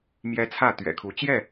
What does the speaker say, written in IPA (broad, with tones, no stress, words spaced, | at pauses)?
mjɛ˦t͡sʰä˥˨ t̪ɥɛ̰˨˩kʰu˨˦ t͡ɕjɛ˥˨